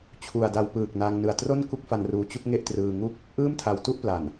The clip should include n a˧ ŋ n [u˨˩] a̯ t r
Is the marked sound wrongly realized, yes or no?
yes